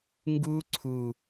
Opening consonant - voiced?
yes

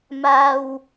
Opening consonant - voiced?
yes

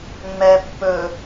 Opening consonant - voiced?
yes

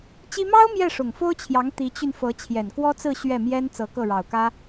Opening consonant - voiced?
no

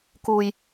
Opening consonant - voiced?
no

